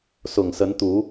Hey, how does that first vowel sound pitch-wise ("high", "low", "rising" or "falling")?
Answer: low